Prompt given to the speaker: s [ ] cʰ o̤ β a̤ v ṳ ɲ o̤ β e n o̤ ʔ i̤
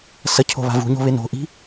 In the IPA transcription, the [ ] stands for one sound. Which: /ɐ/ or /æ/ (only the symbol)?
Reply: ɐ